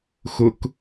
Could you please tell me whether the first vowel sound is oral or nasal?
oral